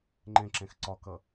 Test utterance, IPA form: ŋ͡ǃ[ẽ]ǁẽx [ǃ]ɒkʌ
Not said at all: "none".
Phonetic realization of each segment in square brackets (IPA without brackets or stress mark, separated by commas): ẽ, ǀ